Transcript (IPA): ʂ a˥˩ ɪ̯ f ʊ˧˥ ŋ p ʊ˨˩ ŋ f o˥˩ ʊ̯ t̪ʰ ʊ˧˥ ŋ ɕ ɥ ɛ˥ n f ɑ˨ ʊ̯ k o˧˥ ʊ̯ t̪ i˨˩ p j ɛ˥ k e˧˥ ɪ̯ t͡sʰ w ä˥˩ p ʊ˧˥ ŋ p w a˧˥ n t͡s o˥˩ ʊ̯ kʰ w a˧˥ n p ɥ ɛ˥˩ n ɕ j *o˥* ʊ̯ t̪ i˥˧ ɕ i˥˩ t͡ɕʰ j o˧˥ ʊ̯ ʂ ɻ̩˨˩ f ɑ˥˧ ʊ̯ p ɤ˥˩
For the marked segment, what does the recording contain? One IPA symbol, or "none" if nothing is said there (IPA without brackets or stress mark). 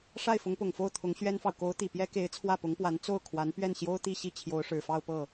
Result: o˥